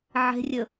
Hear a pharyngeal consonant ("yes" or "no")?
yes